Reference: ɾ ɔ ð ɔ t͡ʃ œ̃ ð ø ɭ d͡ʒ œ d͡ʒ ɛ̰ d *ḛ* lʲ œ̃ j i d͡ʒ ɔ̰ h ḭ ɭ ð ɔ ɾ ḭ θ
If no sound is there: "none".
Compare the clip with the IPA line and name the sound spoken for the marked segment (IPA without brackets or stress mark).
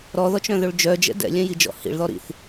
ɛ̰